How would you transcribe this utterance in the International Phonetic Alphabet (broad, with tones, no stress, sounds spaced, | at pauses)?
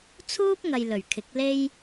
t͡sʰ uː˥ p̚ ŋ ɐ˨ j l ɵ˨˩ ɥ kʰ ɪ˨˥ k̚ l e˥ j